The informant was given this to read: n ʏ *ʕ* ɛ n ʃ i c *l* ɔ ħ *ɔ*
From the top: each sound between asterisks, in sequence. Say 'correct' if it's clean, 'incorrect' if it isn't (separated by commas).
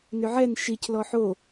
correct, correct, incorrect